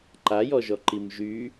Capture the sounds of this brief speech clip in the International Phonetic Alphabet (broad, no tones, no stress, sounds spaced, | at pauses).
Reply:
ǃ a j ɔ ʒ ɔ ǃ i m ʒ y